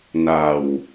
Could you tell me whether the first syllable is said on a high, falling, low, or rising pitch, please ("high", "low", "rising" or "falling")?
low